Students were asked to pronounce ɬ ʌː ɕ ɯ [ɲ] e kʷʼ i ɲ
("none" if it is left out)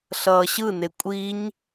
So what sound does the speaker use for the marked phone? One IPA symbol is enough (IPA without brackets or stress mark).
n